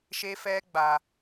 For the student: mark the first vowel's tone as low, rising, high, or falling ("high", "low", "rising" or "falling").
high